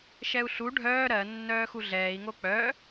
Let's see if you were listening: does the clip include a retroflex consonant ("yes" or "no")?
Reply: yes